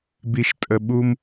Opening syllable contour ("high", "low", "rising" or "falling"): low